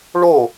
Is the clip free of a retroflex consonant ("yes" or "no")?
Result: no